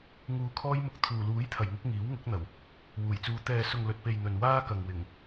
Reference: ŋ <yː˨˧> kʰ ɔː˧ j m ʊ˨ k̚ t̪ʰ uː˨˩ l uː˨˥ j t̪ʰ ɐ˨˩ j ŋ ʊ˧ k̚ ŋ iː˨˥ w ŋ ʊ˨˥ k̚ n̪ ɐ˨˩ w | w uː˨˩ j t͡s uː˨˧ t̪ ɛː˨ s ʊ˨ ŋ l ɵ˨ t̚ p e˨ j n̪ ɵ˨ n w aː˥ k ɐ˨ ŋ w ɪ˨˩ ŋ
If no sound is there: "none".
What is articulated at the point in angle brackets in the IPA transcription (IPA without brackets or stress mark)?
uː˨˧